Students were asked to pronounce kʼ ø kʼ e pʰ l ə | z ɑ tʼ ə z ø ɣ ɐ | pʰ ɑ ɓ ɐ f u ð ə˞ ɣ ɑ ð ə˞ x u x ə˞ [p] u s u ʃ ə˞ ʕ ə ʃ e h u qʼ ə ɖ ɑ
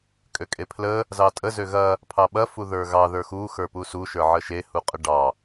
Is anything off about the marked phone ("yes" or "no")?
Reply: no